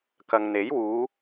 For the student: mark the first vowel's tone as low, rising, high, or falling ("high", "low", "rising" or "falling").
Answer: low